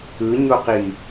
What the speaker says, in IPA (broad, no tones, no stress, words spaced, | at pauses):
ɯɲoqi